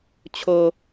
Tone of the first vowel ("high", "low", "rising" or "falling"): low